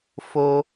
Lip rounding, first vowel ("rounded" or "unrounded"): rounded